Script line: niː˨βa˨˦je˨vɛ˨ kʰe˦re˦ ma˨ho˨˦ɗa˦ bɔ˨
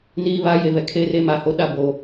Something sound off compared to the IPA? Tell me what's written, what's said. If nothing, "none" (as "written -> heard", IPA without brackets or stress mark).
ɔ˨ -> o˨